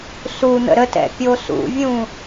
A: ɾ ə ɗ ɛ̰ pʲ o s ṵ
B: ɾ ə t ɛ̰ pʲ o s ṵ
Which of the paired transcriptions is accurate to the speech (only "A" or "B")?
B